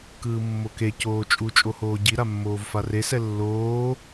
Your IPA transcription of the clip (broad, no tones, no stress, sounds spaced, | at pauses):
k ɯː mː o k e c oː t͡ʃʼ u t͡ʃʼ o h oː ɟ i ɾ a mː oː v f a r e s ɛ lː oː